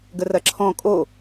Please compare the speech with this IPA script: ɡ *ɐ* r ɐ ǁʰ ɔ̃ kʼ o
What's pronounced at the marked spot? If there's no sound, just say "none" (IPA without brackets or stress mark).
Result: ə